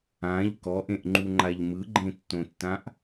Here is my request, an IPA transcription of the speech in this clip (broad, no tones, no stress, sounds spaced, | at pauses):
ã ʎ k ɔ ʔ ẽ ʔ ŋ͡ǃ u ŋ͡ǃ a ʎ m ɯ ɡ͡ǃ ẽ tː õ tː ã ʔ